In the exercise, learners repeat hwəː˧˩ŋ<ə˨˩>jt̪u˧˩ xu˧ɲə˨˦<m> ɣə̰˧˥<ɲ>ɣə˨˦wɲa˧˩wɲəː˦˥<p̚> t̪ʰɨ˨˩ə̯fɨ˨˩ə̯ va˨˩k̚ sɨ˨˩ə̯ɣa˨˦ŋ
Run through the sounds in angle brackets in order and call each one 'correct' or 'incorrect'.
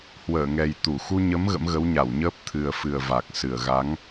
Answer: incorrect, correct, incorrect, correct

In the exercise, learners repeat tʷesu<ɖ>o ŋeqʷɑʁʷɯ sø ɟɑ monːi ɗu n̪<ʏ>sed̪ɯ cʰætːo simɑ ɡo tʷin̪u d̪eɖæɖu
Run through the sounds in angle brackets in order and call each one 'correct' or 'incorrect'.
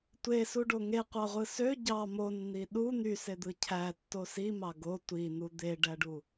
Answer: correct, incorrect

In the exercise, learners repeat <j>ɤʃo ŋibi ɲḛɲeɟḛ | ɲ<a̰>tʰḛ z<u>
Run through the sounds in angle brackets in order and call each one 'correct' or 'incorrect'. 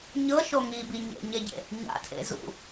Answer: incorrect, correct, incorrect

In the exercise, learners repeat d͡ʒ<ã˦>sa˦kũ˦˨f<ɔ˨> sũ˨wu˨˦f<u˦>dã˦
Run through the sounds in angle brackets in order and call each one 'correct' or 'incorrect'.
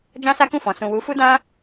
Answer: correct, incorrect, correct

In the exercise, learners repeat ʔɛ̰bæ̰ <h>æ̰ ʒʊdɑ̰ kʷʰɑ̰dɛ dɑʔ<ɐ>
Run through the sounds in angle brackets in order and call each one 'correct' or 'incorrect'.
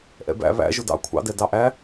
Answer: incorrect, incorrect

